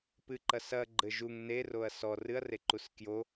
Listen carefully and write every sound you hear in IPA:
pɨǃɐ sɐɡ͡ǃɘ ʒuŋ neroɐ̯ sɔ rɨɐ̯reǃus kjo

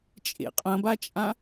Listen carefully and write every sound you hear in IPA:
t͡ʃʼḛqʼɐ̃bat͡ʃʼã

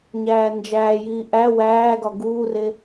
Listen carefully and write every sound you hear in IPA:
ɲæːnd͡ʒæːjiː ʔæ wæːɡɒ ɡuːre

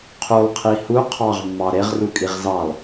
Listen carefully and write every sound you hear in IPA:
qʰulˠqʰi hu qʰɑʁmːɑ ɾeʁrukʼiʁ zɑlˠ

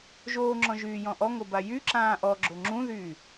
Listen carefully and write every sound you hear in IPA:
ʒoːŋ͡ǁɔ̃ʒyːjɔ̃ ʔɔŋoba jyǁãː ʔɔɡ͡ǁo ŋ͡ǁũðyː

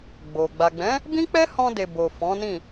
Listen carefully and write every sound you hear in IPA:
ɡ͡bo˨ ɡ͡ba˨ɡ͡bɛ̃˨˦ | bĩ˦k͡pɛ˦hɔ̃˧de˨ bo˨ fɔ̃˨˦nĩ˦˨

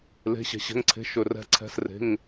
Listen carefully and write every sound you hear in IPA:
le̤˩˧˩ɕɛ̤˩ɕɛ̤˩˧˩ŋǀʰe̤˩˧˩ ʃɵ˩rɛ̤˩˧˩ǀʰɛ̤˩˧˩s re̤˩˧˩ŋ

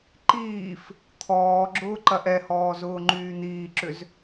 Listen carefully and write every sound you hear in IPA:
ǃiːf | t̪ʰɔːɡ͡ǁʊː ǃɐʔɛhɔː zʊːŋ͡ǃyːn̪iːǁʏz

